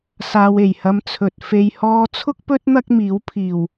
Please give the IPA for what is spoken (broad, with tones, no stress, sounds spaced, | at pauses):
s aː˧ w e˨˩ j h ɐ˧ m t͡sʰ ɵ˨ t̚ f e˨ j h ɔː˧ t͡sʰ ʊ˥ k̚ p ɵ˥ t̚ n̪ ɐ˥ k̚ m iː˨˥ w pʰ iː˨˩ w